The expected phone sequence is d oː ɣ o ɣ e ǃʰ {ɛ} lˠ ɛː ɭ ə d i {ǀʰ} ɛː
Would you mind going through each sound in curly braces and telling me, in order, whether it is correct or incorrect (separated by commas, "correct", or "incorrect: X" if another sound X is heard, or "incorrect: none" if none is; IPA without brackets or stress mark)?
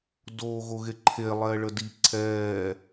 incorrect: e, correct